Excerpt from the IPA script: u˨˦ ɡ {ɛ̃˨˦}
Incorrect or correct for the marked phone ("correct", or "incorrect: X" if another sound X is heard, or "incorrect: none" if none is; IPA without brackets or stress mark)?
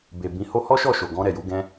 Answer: incorrect: ɛ̃˧